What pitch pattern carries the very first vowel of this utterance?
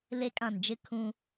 high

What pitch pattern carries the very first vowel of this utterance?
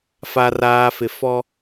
low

